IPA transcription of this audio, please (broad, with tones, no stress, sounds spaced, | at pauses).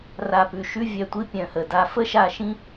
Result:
r a˨ p ʉ˨ ʃ ʉ˧ vʲ œ˨ tʷ i˧ pʲ œ̃˨ h ə˨ d a˦ f ə˦ ʃ a˧ ʃ ĩ˦